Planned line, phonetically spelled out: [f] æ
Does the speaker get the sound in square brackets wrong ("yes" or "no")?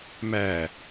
yes